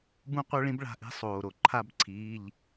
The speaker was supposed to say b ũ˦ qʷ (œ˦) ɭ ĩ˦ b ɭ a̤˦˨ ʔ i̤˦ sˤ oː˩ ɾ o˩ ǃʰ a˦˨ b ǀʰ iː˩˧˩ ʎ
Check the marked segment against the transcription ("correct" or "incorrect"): correct